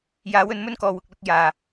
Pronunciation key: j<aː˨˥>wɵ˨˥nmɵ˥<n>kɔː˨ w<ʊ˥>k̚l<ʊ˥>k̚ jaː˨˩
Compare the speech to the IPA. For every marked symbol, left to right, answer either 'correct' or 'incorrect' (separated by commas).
correct, correct, incorrect, incorrect